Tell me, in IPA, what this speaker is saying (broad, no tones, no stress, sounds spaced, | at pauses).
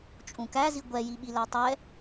t͡ʃʼ ũ k æ z i ɡʷ ɛ j i ɓ i l æ tˤ ɛ